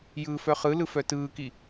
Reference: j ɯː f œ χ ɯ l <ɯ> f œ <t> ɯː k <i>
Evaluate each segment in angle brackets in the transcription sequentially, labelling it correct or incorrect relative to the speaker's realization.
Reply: correct, correct, correct

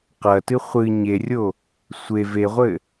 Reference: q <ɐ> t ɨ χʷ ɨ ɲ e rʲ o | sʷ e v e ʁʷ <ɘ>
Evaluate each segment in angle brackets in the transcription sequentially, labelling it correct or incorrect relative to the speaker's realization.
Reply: correct, correct

